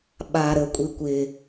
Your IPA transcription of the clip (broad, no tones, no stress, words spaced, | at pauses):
ɓa ɾə kʷʼikʷɪ